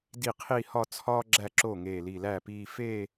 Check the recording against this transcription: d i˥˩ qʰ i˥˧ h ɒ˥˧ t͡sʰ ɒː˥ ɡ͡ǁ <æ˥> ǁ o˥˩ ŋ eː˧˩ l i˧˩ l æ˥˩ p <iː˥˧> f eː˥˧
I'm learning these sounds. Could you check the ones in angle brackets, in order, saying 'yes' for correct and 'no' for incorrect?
no, yes

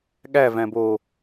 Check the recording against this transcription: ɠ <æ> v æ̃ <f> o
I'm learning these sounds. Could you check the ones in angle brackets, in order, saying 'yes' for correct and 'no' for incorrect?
yes, no

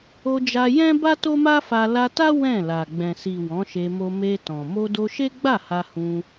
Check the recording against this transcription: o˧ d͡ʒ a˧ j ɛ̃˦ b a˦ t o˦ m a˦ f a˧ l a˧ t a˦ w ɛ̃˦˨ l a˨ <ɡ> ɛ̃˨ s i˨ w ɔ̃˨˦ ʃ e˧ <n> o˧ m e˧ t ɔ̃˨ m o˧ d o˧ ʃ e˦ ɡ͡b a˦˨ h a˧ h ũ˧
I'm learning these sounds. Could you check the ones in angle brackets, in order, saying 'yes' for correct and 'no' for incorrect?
no, no

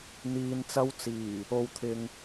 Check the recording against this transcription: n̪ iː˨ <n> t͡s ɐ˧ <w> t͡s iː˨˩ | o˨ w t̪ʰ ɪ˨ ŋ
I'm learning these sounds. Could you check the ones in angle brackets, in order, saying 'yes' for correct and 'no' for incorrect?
yes, yes

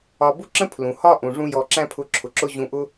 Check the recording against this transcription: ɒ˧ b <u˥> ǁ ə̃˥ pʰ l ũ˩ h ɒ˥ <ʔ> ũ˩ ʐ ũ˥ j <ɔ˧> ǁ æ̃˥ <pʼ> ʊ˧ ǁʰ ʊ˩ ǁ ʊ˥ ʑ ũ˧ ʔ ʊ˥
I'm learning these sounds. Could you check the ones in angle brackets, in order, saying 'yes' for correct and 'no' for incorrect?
yes, yes, yes, no

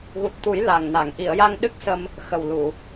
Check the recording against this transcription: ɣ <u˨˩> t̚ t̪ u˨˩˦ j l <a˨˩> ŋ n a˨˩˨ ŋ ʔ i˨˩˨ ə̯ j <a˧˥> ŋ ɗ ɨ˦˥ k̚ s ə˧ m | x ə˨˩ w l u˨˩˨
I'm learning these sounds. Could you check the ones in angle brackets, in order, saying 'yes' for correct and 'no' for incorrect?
yes, yes, no

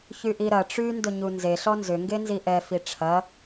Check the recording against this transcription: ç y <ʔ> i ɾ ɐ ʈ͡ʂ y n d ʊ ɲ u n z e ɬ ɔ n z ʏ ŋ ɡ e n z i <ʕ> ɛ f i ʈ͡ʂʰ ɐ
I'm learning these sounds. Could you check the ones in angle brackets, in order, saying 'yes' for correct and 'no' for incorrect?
yes, no

